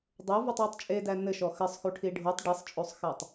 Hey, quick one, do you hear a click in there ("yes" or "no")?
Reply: no